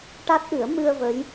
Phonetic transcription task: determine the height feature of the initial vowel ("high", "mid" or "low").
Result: low